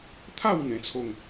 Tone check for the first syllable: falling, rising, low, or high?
falling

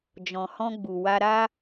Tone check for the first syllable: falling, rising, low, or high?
low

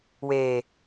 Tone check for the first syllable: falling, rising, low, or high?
low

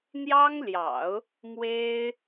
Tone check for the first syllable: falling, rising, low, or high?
high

